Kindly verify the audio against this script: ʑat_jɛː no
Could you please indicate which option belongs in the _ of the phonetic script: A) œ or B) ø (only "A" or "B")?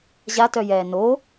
A